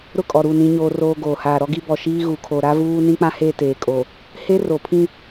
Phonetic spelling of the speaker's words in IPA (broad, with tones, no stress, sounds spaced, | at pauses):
ɾ ʊ˦˨ kʼ ɔ˨ ɾ u˦˨ n ĩ˦ ɲ oː˦ r oː˦ ɡ oː˨ h aː˨ ɾ ɔ˦ ɡ i˦ b ɔ˨ ʃ iː˦ ɣ u˨ kʰ o˨ ɾ a˦ v uː˦ n ĩ˦ k͡p ã˦ h e˦˨ t eː˨ kʼ o˨ | h e˦ r o˨ pʰ ĩ˦